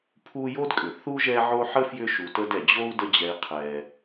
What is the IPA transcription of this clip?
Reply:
pʰ u˦ j o˥ d kʼ ʏ˩ θ u˥ ʒ ɛ˦ ʕ o˦ ħ ə˥ f j ʏ˦ ʃ u˨ t ə˦ d ɛ˩ d͡ʑ o˥ u̯ d ə˦ d͡ʑ ɛ˨ i̯ qʰ ɛ˩

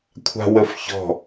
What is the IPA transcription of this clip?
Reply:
kʷʰ a̤ w ə f ç ɔ̤

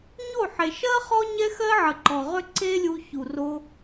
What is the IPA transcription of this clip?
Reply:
ɲ o˦˨ ħ e˨ ʃ ɜ˦ χ ɔ˦ ɲ ɛ˦ x ɜ˦ ʕ ə˨ ǃ ɔ˨ ʁ ʏ˦ ǀ e˦ lʲ u˧ ç u˨ r o˧

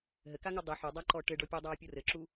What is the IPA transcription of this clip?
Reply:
ɦ ɘ k a ŋ u dˤ ɨ ħ u dˤ a ǃ ɔ ʈ ɘ ɖ ɔ pʲ ɨ dˤ aː pʲ o r ɘ ǁ u

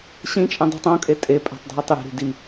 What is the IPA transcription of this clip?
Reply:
ɕ ĩ t͡ʃʼ ẽ dˤ i̤ tˤ õ kʼ e tʼ e pʼ æ̤ tˤ dʱ æ tˤ j e̤ ɾ i̤ d i

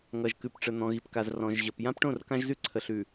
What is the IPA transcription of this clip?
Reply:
ŋ ʌ˨ ʒ k ʉ˨ p ʈ͡ʂ ə˨ n̪ ɔ̃˨ ɣ i˨ p k a˨ z r ɔ̃˨ ʒ ʑ ʌ˨ p j ã˦ p ʈ õ˦˨ r k ã˦ ʒ z ʉ˦ ǀʰ ə˨ ɬ ʉ˨

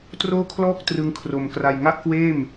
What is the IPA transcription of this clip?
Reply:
t r oː˥˩ kʰ l ɔː˥˩ k̚ t r ɯ˦˥ ŋ kʰ r o˧ m k r a˧ j ŋ a˥˩ ʔ k w eː˥˩ m

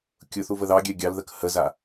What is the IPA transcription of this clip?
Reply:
kʲ ʊ θ u v ə ð ɑ ɡʲ ɛ ɡʲ ɑ l ð ə k h ə z a

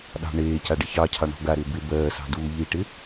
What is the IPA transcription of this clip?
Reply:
ɗ ɑ̤ ɳ eː c a ɖ ɪ ç ɑ cʰ ɑ ɳ ɔ̤ ɡ a ɾ ɪː b ɪ b ɜː s ɑ̤ d uː ʎ iː ʈ ɪ

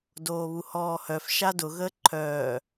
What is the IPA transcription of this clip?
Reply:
d oː β u h ɔː h œ f ʃ a d ʊ ɣ əː ǃʰ œː

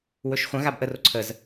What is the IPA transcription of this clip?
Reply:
w ɵ ʃ χʷ ə̃ ɣ a b ʔ ə r o ǀʰ ə z

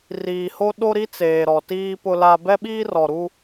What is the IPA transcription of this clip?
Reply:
r iː˨ h o˦ ɗ o˦ ɾ i˦ t͡s eː˨ ɾ ɔ˨ t iː˦ p ʊ˦ l a˦ b ɛ˦ ɓ iː˦ r ɔ˨ ɾ u˦

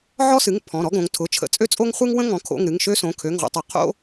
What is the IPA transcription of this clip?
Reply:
ʕ ɔ˥ s ɨ˩˧˩ ŋ pʰ ɔ̃˩˧˩ ɾ ɔ˥ ɡ õ˩˧ ŋ tʰ ʊ˩˧˩ t͡ʃʰ ə̰˩˧ t͡sʼ ø˥ t͡sʼ o˥ ŋ χʷ ɨ˥ ŋ w ə̃˥ ŋ ɔ̃˩˧ kʰ o̰˩˧˩ ŋ ɾ ɨ˩˧˩ ŋ ʃ ø˥ s õ˩˧˩ kʰ ø˩˧˩ ŋ ʁʷ ə̰˩˧ tˤ o˩˧ qʰ o̰˥

